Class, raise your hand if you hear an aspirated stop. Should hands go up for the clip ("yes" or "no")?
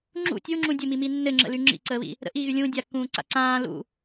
no